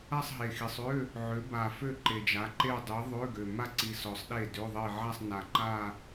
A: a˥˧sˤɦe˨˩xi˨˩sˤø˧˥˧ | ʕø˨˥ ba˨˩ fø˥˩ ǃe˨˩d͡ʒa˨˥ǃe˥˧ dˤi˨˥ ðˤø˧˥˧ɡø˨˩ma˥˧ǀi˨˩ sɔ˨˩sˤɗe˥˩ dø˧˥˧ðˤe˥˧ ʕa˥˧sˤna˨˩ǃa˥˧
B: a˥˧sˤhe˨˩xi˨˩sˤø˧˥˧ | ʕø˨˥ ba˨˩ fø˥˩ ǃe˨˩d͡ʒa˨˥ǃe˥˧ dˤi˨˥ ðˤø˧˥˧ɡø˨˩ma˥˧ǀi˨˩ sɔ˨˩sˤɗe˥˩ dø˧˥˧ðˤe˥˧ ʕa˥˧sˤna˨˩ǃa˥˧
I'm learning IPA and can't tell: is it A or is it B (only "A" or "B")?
A